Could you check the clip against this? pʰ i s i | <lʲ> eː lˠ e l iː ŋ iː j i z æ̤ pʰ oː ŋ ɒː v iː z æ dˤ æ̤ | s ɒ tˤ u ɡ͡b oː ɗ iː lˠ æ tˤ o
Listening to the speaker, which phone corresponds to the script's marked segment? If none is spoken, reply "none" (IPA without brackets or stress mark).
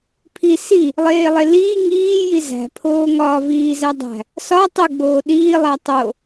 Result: lˠ